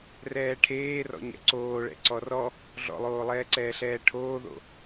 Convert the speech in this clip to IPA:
r ɛː ʈʰ eː r ɔ̰ ɲ ɛ̰ ǀ oː ɭ ɛ̰ ǀ ɔ r ɔ | ɮ ɔ̰ lˠ oː lˠ ɛː ǀ ɛː ɬ ɛː ʈʰ oː ð o̰

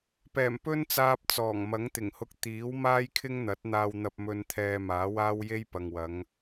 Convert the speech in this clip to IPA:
p ɛː˨˩ m p ɵ˥ n t͡s aː˧ p̚ t͡s ɔː˨˩ ŋ m ɐ˨˥ ŋ t̪ ɪ˨˩ ŋ h ʊ˧ k̚ t̪ iː˨˥ w m aː˥ j kʰ ɪ˥ ŋ n̪ ɐ˨˥ t̚ n̪ aː˧ w n̪ ɐ˧ p̚ m ɵ˧ n t̪ʰ ɛː˧ m aː˨˥ w aː˥ w j e˥ j p ɐ˨ ŋ w ɐ˨˧ ŋ

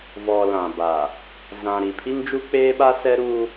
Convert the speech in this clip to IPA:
v ɔ˨ l ã˨ b a˨ | z ã˨ ɾ i˨ pʰ i˦ ŋ d͡ʒ u˦ k͡p eː˦ ɓ a˦ s ɛ˦ ɾ uː˦

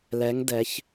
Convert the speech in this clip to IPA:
l ɛ˧˥ ŋ d ɛ˧˥ ç

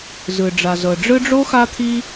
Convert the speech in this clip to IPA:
z ɯ˩ ɖ͡ʐ a˩ z ɤ˩ ɖ͡ʐ ɯ˦ ɖ͡ʐ o˥ x a˦ t̪ʰ i˦

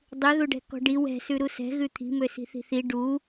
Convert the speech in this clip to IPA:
dˤ ʉ ð u ɖ ɛ̤ k ɔ̤ ɖ i w ɛ̤ s ʉ ɾ u s ɛ̤ ɣ ʉ t̪ʰ i̤ m ø s i̤ θ i̤ θ i ɖ u

